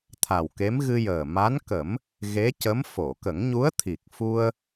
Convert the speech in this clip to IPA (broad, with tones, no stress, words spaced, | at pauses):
t̪ʰa˨˩wke˧˥m ɣɨ˧jəː˨˩ ma˧˥nkə˨˩˦m | ɣe˧˥cə˧˥m fo˨˩˨kə˨˩˦ŋɲu˧˥ə̯t̪ʰi˨˩k̚ fu˧ə̯